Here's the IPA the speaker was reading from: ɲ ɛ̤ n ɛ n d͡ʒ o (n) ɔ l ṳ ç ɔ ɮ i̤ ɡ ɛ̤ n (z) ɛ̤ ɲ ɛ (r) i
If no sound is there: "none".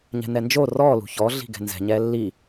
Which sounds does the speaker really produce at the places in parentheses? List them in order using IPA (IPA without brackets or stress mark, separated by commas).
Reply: r, z, lː